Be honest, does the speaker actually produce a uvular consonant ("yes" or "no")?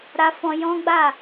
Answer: no